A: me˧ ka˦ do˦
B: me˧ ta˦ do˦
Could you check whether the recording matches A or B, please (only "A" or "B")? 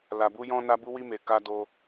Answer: A